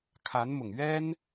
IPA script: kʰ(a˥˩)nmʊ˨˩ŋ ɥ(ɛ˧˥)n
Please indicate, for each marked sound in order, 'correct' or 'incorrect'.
incorrect: a˧˥, incorrect: ɛ˥

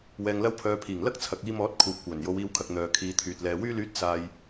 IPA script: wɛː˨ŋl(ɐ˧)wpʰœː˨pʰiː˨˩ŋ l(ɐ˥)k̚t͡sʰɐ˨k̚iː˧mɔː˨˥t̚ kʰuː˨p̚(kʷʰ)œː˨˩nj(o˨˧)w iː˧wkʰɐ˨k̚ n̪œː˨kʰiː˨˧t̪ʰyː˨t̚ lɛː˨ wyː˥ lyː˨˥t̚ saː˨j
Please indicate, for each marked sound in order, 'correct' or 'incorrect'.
correct, correct, incorrect: kʷ, correct

